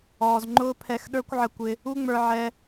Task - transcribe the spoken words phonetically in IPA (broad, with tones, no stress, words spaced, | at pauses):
ɔː˨zŋ͡ǃʊː˦pʰɛ˧x ɗə˞˦kʷʕə˧kʷɪ˧ | u˦ŋ͡mə˞˧ʕɛ˧